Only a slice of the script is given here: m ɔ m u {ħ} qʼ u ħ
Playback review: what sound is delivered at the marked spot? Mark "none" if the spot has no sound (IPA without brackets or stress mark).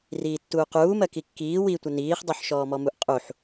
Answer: ʔ